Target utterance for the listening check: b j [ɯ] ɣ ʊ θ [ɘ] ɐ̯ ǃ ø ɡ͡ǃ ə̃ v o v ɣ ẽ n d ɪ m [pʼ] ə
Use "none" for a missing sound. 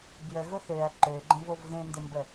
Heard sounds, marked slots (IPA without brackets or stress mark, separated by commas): ə, ø, b